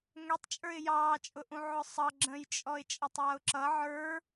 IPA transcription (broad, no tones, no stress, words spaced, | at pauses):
ŋɛtˤt͡ʃʼə˞ɪ̯ jɑːt͡ʃʼʊʔũ ʕʊsˤʌ ɡ͡ǁə̃jt͡ʃʼɔɪ̯ t͡ʃʼʌtˤjʌʊ̯ǁʌ ʕə˞